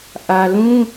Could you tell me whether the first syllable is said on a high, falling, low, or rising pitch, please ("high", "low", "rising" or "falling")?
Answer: low